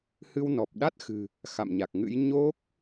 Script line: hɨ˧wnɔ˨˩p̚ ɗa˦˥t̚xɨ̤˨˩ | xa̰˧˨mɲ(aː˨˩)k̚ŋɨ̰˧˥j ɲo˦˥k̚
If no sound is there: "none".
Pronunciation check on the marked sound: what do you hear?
a˨˩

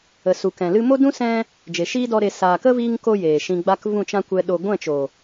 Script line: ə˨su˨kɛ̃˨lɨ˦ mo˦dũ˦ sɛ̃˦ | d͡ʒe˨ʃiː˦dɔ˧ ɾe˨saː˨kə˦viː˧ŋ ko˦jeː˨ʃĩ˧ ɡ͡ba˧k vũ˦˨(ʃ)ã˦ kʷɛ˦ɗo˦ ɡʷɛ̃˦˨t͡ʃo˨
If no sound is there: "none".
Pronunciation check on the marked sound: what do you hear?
t͡ʃ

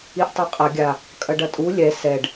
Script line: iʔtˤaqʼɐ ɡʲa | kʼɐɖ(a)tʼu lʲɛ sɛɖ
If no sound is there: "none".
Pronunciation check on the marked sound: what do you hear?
ɐ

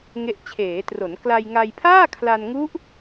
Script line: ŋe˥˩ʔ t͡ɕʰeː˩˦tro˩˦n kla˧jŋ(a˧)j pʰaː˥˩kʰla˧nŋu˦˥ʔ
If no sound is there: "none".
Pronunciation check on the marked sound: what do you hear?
a˧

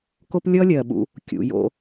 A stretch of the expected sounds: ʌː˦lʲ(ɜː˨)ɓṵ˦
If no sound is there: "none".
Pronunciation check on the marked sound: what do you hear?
ɜː˨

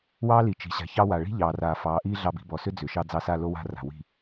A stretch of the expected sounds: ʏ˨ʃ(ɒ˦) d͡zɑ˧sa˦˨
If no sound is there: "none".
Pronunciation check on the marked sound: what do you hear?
ɑ˦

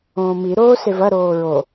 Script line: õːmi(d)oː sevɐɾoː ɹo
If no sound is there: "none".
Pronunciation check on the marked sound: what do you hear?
ɾ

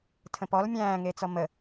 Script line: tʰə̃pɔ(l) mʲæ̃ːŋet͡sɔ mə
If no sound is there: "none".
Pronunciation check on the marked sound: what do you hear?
l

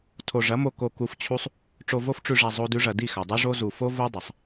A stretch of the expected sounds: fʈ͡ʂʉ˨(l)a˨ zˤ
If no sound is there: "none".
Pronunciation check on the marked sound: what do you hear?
ʐ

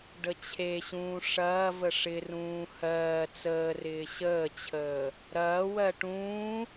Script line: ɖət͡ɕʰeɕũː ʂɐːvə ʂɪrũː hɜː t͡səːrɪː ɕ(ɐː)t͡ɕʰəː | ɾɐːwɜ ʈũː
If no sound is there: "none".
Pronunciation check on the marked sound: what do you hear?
əː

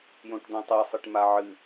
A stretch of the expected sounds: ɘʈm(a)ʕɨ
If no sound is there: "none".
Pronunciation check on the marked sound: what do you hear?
a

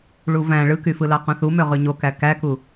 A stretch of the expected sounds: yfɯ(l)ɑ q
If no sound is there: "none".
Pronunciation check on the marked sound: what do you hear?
l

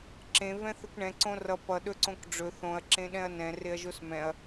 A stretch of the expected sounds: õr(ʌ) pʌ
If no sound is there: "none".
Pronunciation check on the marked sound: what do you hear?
ʌ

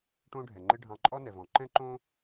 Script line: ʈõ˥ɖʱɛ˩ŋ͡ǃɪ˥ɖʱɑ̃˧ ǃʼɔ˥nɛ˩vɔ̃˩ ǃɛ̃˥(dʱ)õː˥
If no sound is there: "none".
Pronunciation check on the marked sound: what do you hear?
ǃ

